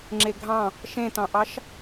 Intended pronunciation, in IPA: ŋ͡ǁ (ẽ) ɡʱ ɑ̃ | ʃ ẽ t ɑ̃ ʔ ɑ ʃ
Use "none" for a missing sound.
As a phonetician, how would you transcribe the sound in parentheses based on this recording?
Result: e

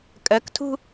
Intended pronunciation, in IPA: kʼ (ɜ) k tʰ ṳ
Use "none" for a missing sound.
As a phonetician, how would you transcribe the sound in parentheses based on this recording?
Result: ɜ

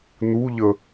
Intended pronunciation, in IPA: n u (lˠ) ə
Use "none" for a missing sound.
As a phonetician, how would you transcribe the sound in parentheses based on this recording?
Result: ʎ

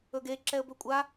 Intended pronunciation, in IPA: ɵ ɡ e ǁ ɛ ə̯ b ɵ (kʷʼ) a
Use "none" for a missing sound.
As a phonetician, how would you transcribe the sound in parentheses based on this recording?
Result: kʷʼ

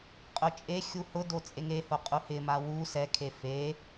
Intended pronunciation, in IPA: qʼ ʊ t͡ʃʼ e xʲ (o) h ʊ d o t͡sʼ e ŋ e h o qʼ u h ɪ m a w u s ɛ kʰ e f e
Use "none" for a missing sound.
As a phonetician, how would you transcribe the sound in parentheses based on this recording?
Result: u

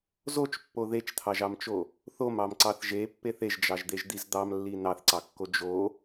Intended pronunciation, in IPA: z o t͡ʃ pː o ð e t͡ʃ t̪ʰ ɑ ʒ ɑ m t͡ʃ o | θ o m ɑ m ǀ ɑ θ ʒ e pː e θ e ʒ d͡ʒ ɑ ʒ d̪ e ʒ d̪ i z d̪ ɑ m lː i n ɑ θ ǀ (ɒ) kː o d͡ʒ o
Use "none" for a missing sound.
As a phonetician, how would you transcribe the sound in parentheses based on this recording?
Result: ɑ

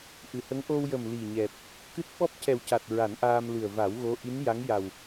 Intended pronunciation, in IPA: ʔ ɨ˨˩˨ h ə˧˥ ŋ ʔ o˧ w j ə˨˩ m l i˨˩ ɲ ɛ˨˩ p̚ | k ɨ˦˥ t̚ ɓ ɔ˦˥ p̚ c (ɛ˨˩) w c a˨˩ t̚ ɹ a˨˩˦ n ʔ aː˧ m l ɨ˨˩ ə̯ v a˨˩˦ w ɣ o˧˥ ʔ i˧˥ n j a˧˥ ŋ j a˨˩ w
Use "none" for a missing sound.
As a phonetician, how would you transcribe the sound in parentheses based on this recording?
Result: ɛ˨˩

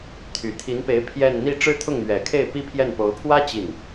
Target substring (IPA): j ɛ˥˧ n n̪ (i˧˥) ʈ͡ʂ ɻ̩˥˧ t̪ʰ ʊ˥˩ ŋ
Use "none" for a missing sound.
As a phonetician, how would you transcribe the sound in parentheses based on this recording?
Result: i˥˧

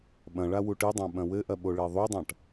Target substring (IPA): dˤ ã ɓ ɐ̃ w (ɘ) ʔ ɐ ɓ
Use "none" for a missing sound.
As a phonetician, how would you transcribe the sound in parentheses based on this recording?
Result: ɘ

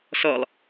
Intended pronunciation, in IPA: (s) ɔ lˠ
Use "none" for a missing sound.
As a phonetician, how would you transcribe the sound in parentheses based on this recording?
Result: s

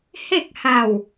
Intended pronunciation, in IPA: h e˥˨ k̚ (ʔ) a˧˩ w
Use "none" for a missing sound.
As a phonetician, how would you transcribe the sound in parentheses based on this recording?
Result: h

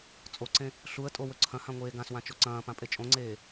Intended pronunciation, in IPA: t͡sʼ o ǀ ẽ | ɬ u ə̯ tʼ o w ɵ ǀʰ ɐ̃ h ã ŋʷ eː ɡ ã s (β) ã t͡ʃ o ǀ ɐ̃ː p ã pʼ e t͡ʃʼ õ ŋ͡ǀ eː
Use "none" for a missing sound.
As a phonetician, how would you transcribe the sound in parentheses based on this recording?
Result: w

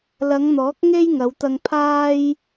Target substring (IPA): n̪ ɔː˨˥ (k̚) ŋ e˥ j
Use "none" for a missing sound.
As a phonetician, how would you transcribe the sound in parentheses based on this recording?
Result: k̚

